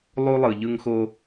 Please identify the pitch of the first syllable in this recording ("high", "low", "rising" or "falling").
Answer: high